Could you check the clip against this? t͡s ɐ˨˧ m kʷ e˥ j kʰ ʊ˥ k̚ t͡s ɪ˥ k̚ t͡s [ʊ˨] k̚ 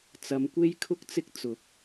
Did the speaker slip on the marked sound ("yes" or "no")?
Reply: no